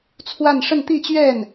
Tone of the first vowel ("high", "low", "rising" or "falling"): falling